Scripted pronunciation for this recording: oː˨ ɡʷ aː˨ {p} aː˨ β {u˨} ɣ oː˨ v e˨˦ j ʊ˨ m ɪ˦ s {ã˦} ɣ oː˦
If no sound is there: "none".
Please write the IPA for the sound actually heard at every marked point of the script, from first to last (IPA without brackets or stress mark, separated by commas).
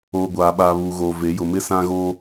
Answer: ɓ, uː˨, ã˦